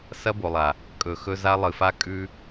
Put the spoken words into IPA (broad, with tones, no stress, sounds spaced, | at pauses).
s ɐ˦ b o˨ lˠ a˨ | kʼ ɵ˨ x ɵ˧ z a˧ lˠ ɨ˨ f a˧ kʼ ʉ˧